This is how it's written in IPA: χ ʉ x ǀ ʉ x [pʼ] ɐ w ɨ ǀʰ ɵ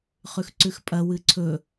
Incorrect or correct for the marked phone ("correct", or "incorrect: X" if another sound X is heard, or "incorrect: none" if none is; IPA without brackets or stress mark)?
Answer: correct